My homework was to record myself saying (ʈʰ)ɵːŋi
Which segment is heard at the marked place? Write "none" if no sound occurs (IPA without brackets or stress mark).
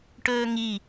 ʈ